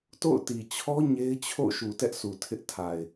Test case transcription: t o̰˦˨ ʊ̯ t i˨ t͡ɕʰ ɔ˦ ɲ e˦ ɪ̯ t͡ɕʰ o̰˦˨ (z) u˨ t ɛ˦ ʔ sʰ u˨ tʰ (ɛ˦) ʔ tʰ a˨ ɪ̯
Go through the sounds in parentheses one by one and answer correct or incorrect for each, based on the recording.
incorrect: ʃ, incorrect: ɪ˦

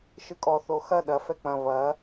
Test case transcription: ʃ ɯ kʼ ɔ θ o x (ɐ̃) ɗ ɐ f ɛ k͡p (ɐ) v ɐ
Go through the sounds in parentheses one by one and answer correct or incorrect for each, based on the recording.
incorrect: ɐ, incorrect: ɐ̃

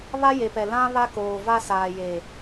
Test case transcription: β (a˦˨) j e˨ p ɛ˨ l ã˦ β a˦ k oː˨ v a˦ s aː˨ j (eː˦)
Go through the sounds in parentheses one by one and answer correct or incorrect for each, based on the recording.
incorrect: a˦, incorrect: eː˨

